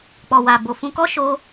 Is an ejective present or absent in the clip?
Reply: absent